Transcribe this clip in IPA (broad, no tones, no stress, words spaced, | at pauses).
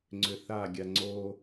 ŋ͡ǀʏθaɡʲa ŋ͡ǀo